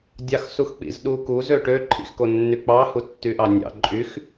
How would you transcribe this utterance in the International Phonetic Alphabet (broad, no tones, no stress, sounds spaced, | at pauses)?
dʲ ɑ x s u x k͡p ḭ z ɗ u k u z ø ʈ ø ǃʰ ḭ x k o nː y k͡p ɑ h u tː y ʔ ɑ nʲ ɑ̰ ǃʼ y x